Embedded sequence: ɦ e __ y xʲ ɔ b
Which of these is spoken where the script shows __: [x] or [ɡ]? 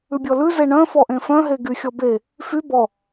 ɡ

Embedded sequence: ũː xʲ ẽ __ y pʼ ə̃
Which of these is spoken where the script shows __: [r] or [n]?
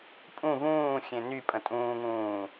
n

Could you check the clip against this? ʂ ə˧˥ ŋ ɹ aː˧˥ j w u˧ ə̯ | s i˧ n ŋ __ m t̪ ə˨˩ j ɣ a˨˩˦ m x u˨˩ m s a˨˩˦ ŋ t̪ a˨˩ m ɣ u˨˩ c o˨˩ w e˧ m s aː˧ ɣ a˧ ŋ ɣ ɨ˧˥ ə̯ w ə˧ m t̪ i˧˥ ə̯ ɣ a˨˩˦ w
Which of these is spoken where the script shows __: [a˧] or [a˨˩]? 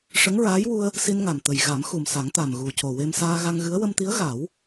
a˨˩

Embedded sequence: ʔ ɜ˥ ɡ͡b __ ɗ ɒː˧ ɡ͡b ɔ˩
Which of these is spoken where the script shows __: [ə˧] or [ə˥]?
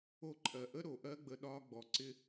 ə˧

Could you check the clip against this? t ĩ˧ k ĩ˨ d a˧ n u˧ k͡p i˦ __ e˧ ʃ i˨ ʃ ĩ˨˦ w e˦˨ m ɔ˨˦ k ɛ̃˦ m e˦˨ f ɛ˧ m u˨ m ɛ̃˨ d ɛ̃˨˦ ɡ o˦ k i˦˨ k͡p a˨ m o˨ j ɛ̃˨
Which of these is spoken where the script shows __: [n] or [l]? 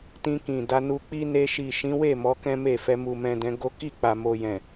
n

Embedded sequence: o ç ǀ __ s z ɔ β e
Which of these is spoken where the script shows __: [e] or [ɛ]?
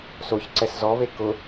ɛ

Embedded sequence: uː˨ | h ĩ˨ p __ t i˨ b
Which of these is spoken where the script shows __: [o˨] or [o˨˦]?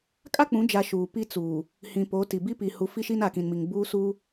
o˨˦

